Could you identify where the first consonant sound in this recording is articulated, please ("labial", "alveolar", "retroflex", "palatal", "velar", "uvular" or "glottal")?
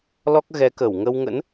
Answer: alveolar